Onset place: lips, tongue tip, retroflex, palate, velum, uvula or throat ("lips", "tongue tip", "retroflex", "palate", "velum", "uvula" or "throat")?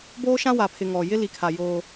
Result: lips